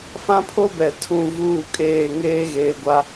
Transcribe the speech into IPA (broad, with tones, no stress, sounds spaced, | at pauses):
f ã˦ pʰ o˦ b ɛ˨ tʰ ũ˦˨ v uː˦˨ kʼ eː˦˨ ŋ eː˦ ɣ eː˨ ɡʷ a˨